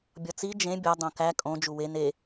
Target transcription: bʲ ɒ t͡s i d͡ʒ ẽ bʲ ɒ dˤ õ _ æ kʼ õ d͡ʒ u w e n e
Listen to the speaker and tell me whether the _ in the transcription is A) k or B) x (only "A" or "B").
A